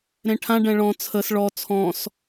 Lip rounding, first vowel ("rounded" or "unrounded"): unrounded